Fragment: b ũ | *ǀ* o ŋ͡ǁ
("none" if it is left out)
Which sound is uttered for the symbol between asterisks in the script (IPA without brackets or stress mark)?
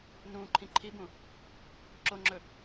ǁ